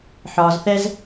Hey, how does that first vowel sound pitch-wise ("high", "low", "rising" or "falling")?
low